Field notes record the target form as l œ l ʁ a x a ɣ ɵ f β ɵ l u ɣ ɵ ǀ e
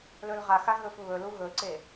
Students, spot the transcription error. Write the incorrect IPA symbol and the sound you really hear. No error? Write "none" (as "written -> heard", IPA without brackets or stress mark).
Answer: œ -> ɵ